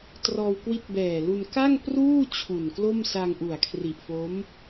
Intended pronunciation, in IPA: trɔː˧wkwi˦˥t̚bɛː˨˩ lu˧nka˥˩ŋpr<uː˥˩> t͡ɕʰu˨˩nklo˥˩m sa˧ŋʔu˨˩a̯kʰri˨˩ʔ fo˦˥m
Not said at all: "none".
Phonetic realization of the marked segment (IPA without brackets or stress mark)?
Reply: uː˥˩